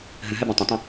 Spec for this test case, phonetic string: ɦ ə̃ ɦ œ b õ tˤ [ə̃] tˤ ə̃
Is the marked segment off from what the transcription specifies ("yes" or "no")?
no